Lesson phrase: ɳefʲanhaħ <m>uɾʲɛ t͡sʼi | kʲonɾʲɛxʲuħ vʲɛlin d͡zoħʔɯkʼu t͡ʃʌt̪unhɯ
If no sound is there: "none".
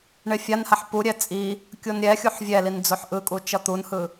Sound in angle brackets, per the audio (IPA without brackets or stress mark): p